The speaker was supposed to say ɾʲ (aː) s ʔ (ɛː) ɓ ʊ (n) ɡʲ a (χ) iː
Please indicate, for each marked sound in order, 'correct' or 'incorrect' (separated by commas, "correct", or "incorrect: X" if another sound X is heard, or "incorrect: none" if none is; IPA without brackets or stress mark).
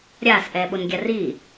correct, correct, correct, incorrect: r